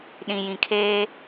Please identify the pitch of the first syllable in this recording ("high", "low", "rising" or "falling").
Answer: low